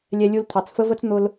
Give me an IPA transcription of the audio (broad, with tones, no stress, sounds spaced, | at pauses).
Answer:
lʲ ɛ˧ lʲ u˧ l t̪ʰ ɑ˩ t͡s f ə˧ v ə˧ t͡s n̪ ʊ˧ l